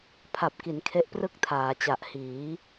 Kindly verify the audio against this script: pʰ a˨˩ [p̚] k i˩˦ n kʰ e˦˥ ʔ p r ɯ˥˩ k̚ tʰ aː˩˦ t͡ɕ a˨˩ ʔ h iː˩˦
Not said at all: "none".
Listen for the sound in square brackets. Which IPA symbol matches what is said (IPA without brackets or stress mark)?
p̚